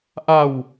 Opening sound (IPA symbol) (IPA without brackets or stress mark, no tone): ʔ